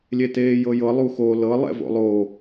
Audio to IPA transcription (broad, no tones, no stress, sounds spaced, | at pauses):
lʲ e t eː j ɤ j ɤ lˠ u x o l ɤ lˠ ɛ̰ v o̰ lˠ o